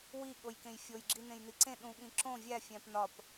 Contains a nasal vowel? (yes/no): yes